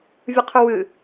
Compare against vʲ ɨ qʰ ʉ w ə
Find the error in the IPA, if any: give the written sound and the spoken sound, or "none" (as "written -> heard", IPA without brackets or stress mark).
ə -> ɨ